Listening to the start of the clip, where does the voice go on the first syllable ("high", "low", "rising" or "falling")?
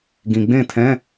low